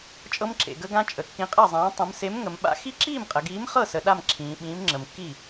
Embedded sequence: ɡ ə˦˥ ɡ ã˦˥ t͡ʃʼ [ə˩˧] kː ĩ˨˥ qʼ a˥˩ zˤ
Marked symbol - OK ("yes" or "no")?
yes